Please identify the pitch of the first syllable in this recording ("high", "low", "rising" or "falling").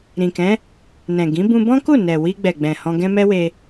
low